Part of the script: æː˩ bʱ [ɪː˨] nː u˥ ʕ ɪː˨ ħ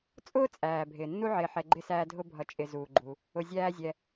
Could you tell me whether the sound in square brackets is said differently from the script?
yes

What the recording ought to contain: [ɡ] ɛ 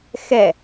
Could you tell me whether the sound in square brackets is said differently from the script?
yes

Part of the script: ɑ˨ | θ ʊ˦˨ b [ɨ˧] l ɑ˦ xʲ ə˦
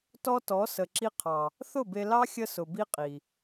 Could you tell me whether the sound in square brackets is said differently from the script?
yes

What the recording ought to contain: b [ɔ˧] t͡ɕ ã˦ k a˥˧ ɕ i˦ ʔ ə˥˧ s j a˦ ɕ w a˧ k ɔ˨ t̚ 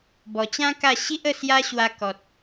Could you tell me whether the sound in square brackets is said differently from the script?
yes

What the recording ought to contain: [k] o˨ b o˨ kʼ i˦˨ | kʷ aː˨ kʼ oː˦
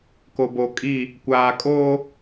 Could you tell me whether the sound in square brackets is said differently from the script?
no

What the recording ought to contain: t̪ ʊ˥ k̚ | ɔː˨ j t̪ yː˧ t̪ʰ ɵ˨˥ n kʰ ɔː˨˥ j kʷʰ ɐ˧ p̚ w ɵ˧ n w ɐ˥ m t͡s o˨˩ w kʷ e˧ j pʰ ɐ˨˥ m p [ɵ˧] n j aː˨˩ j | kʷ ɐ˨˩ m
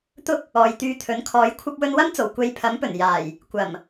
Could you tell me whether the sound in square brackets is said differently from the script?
yes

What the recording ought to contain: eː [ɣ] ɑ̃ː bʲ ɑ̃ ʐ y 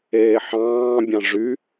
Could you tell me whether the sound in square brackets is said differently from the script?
yes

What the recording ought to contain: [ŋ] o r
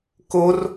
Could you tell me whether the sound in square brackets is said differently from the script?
yes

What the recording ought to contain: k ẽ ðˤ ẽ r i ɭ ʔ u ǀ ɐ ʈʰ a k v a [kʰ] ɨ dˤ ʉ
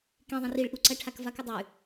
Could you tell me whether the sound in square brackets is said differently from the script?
yes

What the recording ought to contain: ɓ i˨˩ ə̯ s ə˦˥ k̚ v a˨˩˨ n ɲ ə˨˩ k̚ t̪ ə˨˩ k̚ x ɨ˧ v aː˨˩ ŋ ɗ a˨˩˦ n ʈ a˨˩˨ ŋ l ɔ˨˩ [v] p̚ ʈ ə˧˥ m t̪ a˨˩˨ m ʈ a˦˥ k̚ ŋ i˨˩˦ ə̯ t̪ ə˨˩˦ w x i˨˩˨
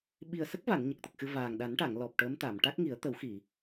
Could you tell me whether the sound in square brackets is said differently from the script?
yes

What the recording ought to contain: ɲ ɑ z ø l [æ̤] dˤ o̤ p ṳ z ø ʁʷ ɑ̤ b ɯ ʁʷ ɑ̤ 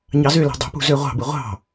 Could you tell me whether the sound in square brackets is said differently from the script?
no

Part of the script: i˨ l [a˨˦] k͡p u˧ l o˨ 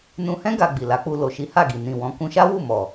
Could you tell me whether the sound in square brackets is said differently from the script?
no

